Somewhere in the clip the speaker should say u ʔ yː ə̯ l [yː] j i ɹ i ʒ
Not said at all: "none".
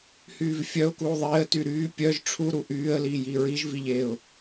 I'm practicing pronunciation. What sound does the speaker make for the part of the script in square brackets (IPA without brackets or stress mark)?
iː